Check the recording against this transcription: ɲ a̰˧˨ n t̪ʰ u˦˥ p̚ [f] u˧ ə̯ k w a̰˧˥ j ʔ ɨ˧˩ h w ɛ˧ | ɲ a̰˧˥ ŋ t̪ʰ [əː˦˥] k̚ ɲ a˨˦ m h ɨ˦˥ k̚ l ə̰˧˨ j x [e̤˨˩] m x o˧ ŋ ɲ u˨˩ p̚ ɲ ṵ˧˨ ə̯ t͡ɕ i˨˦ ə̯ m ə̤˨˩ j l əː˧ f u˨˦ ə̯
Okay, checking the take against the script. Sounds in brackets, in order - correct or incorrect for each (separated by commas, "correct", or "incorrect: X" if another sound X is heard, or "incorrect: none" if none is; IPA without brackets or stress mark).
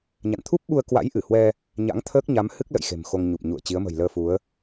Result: incorrect: ɓ, correct, correct